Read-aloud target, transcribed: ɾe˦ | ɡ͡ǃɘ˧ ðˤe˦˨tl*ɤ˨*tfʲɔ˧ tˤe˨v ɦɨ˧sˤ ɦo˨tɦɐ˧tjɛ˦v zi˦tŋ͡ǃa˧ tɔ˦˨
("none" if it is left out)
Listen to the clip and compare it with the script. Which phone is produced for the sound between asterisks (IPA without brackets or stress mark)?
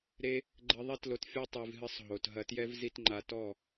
o˨